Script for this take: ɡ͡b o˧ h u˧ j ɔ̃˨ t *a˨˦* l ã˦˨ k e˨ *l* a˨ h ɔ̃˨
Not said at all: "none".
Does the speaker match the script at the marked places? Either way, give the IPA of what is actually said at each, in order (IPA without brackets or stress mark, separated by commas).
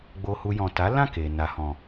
a˨˦, n